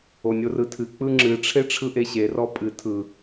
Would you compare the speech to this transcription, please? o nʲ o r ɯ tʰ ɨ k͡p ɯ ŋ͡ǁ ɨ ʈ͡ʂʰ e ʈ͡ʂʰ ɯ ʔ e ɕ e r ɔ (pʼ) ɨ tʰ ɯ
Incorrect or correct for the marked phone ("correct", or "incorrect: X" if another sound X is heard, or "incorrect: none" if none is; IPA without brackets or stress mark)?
correct